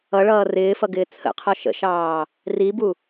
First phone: ʌ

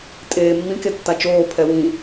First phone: tʼ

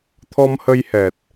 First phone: t̪ʰ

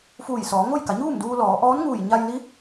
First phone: f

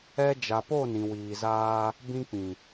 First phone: ɛ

